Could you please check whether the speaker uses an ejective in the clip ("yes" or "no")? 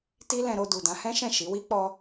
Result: no